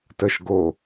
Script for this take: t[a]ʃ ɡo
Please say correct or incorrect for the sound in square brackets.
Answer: incorrect: ə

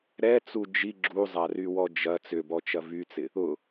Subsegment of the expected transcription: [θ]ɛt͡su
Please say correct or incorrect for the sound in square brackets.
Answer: incorrect: ɾ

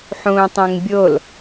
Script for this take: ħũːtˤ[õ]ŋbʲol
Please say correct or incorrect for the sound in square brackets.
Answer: incorrect: ũ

